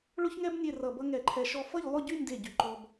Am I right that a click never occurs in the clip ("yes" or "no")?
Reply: no